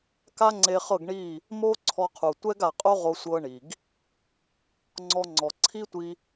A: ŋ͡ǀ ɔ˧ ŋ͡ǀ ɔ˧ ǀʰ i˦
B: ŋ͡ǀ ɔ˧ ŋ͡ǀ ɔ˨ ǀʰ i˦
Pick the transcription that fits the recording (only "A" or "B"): B